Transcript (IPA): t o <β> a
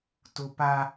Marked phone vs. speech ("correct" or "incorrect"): incorrect